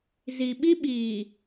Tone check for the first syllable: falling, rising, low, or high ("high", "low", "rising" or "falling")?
low